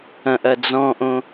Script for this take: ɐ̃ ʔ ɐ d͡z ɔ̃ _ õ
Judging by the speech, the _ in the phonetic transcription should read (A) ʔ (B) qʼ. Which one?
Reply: A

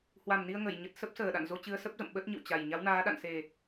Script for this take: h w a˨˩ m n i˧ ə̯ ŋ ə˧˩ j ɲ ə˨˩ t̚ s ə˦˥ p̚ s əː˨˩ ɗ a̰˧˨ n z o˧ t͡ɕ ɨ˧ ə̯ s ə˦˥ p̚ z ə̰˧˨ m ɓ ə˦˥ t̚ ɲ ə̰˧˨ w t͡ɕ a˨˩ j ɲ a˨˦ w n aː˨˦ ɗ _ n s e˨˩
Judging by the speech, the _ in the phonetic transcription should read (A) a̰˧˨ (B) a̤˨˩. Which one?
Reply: A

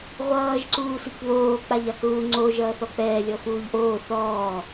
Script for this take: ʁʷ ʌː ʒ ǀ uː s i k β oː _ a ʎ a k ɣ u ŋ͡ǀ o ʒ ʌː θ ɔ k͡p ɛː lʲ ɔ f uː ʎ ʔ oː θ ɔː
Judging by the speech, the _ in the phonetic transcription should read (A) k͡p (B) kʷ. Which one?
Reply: A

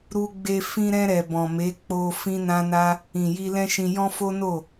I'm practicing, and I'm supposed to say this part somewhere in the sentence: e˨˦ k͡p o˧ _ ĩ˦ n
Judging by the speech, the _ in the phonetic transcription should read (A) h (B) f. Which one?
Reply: B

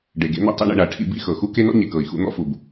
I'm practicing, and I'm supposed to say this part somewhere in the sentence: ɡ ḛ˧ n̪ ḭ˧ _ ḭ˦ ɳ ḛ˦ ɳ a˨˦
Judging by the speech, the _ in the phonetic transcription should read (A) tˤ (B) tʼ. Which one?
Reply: A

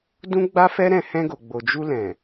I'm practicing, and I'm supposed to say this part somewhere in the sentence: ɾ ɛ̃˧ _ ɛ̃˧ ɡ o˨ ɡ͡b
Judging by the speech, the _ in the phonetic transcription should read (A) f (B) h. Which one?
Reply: B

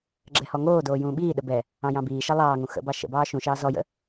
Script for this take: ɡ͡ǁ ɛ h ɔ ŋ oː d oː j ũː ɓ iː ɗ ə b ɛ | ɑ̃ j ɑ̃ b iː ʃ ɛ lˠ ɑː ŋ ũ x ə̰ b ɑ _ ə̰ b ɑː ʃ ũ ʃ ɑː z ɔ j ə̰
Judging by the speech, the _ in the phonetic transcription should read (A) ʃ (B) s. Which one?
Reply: A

